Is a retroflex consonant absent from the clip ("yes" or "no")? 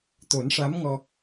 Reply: no